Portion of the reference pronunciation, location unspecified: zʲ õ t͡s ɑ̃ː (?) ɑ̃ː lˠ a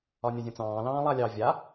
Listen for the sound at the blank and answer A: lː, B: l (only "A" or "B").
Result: B